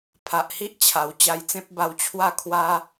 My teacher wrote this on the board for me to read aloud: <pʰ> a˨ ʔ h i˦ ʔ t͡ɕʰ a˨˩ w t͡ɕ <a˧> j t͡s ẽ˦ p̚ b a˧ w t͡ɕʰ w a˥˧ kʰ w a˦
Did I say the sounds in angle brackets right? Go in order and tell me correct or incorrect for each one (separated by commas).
correct, correct